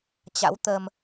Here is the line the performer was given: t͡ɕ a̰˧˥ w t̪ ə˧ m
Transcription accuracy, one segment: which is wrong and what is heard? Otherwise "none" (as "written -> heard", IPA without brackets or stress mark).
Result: none